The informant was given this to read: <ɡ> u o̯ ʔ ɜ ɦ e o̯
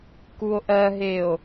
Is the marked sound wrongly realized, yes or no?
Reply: yes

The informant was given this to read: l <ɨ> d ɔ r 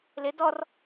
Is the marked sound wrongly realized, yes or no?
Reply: yes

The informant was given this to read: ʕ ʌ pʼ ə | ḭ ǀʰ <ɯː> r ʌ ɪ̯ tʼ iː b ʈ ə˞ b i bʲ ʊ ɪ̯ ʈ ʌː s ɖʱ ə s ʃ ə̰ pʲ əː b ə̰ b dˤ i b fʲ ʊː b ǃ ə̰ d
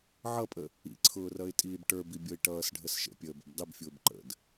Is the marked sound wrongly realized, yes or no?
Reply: yes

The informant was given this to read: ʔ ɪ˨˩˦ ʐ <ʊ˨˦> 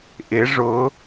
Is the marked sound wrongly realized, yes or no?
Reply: no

